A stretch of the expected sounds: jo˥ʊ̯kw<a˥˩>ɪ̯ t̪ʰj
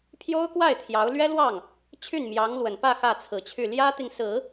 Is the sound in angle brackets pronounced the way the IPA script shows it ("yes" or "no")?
yes